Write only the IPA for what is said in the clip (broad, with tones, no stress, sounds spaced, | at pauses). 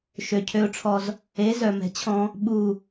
ʃ ø˨ cʰ ø˧ ʊ̯ ʈ͡ʂʰ ɔ˧ z | e˨˦ z œ˨ m ɛ̤˨ t͡ɕʰ ɔ̃˧ | ɓ u˨